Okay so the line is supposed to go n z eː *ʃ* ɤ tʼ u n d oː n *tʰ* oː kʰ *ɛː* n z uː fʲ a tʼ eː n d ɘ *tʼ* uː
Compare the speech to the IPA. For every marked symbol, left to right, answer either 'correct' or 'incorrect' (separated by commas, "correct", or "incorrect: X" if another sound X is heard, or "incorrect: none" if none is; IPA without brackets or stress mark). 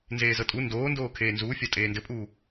incorrect: z, incorrect: d, incorrect: eː, incorrect: pʼ